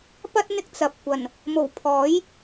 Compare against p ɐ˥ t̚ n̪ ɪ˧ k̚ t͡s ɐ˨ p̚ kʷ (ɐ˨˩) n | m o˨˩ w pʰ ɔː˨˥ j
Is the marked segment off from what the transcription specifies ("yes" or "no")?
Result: no